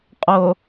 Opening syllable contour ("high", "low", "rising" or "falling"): low